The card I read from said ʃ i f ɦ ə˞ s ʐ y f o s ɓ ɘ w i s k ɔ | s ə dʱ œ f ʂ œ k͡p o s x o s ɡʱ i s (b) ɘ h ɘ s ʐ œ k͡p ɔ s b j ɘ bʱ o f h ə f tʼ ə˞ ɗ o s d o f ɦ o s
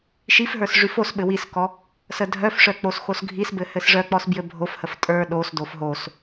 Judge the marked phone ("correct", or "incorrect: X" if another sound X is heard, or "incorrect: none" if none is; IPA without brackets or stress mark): correct